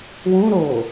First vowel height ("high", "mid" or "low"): high